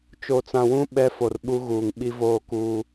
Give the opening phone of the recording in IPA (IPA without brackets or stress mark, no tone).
t͡ʃ